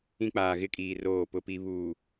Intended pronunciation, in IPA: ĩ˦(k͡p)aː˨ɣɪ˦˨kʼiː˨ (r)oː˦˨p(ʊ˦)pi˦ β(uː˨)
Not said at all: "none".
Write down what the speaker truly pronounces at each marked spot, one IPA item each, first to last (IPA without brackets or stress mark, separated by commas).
k͡p, r, ʊ˦, uː˨